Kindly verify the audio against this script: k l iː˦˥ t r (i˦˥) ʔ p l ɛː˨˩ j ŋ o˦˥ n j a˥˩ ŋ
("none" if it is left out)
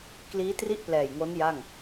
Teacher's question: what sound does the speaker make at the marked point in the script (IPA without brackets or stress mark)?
i˥˩